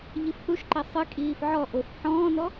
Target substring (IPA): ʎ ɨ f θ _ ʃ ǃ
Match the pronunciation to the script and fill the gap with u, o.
u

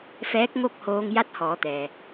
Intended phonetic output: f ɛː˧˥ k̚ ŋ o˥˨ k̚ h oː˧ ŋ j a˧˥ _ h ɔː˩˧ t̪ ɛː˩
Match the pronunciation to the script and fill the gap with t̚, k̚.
t̚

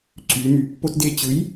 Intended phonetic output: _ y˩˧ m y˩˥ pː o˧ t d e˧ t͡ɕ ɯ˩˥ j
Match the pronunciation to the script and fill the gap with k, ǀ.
ǀ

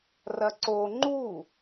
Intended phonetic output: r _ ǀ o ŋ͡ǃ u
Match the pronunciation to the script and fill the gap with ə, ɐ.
ɐ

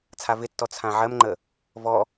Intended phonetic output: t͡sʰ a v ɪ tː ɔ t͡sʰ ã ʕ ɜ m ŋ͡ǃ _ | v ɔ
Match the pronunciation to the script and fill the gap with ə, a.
ə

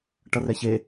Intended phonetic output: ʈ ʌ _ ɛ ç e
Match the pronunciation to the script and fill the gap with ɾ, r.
r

